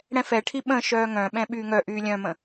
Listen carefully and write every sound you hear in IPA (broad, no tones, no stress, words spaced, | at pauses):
ɽɛ̃fɛʈʰi ɓə̃ ʃœːŋœ̃ɓɛ̃ ɓyːŋœʔyː lʲœ̃mə̃